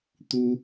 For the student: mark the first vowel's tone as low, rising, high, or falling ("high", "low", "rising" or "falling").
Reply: high